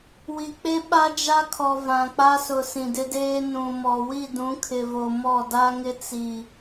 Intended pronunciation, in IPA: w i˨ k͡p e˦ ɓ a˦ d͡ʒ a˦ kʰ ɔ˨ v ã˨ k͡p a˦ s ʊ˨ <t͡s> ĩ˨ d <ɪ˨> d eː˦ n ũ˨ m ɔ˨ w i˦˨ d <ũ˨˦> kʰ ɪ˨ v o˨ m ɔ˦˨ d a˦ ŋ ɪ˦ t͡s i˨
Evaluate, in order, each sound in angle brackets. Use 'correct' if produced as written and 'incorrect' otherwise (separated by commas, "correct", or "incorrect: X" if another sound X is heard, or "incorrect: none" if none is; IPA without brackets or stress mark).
incorrect: s, incorrect: ɪ˦, correct